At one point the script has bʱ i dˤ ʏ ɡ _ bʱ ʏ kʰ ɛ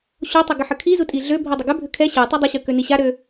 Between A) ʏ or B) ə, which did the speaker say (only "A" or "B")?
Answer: A